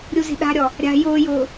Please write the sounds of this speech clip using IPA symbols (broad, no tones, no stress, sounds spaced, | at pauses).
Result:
ɾʲ u z i̤ ɗ a̤ ɾʲ ɔ | ɾʲ a̤ j ʊː j ʊː